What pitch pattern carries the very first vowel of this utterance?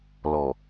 low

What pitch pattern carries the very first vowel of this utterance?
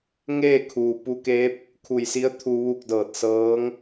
falling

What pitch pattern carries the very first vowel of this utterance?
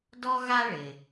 high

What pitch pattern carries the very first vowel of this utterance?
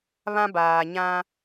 high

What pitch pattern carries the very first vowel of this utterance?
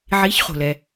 rising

